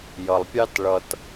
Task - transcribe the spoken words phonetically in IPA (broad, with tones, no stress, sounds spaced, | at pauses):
j ʌ˩ lˠ pʲ ɑ˦ t ɭ ʌ˨ t